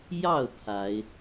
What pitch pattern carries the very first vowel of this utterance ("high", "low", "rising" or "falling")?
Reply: falling